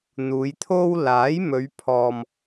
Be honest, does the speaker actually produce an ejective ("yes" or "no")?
no